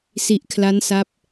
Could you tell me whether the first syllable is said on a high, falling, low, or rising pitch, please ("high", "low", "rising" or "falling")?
low